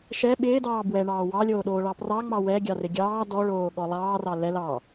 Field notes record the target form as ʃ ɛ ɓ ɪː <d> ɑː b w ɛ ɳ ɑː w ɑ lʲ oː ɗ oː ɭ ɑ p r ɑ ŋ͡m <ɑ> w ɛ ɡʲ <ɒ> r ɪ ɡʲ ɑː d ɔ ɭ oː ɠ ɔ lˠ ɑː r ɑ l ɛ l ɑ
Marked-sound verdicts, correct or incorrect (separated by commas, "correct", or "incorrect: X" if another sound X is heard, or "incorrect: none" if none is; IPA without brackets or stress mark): correct, correct, incorrect: ɑ